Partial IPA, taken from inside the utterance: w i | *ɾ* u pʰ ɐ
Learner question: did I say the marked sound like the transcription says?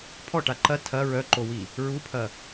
no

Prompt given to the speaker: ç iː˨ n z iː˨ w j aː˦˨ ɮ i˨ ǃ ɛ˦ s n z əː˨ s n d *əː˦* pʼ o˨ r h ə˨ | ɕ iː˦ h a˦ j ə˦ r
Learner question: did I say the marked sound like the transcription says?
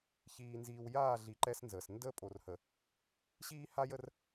yes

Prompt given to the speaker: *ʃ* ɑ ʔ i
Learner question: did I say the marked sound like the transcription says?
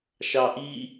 yes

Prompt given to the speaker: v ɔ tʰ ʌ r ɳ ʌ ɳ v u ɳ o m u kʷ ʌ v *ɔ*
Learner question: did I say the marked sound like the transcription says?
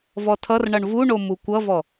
yes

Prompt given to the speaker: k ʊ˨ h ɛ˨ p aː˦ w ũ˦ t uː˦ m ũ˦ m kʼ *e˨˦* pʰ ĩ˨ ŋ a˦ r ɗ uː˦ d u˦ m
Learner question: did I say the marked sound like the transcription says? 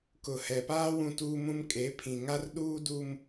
yes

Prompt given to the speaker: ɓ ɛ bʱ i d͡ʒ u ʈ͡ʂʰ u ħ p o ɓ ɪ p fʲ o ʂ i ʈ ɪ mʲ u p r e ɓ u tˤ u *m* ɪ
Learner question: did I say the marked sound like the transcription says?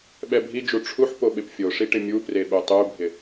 no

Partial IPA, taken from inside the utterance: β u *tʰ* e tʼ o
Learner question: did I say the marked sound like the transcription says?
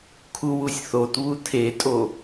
yes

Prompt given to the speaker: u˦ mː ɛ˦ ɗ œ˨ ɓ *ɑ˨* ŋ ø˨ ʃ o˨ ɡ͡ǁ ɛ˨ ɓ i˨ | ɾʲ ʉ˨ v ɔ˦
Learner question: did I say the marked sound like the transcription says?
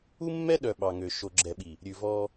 yes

